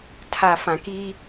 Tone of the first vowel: low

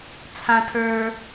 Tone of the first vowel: high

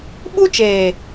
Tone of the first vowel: high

